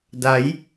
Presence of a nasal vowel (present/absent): absent